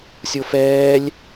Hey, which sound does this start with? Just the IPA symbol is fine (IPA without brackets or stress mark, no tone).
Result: sʲ